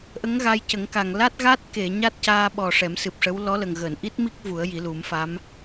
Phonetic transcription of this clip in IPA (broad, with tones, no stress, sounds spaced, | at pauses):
ʔ ə˧˥ ŋ ɣ a˧ j c ə˨˩˦ ŋ k a˨˩ ŋ l a˦˥ t̚ ɣ a˦˥ t̚ k e˨˩˨ ɲ a˦˥ t̚ c aː˧ ɓ ɔ˨˩ ʂ ɛ˨˩˦ m s ɨ˨˩ p̚ ʂ ə˧˥ w l ɔ˧˥ l ə˨˩ ŋ ɣ əː˨˩˨ n ʔ i˦˥ t̚ m i˦˥ k̚ v u˨˩˦ ə̯ j i˨˩˦ l u˨˩˦ m f a˧˥ m